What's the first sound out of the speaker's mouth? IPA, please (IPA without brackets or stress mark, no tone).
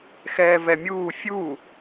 x